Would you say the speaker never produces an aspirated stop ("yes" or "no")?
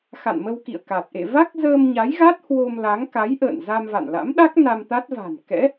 yes